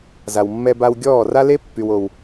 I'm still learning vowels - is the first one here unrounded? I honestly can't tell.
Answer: yes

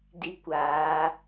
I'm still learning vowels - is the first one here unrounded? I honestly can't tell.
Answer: yes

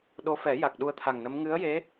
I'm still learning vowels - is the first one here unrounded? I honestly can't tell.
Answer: no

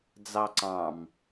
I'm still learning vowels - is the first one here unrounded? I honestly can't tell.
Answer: yes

